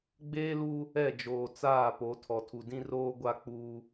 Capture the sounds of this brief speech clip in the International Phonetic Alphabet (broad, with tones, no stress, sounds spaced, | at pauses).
ɡ͡b eː˦ l u˦ | ɛ˦˨ d͡ʒ oː˨ t͡s aː˦˨ p o˨˦ tʰ ɔ˨ tʰ u˨ d ĩ˦ r oː˦ ɡʷ a˦ k͡p uː˦